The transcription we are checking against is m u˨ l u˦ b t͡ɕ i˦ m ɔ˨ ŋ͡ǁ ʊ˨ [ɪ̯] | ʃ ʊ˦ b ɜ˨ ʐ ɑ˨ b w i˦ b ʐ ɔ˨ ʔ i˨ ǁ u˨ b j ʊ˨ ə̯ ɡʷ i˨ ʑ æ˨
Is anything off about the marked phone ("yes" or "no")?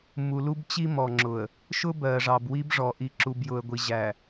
yes